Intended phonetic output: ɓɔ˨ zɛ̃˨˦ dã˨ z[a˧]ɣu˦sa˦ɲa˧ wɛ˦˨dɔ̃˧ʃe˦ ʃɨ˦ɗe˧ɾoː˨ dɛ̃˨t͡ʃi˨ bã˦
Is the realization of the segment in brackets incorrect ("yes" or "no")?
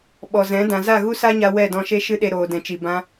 yes